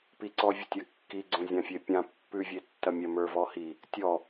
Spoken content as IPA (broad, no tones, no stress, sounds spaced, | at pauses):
p i ǀ ɔ vʲ ə tʲ ɐ kː i ɡ͡ǀ õ zʲ ã fʲ e pʲ ã pː ʉ vʲ e tː ɐ mʲ ɐ m ə˞ v ɔ h i | tʲ ɔ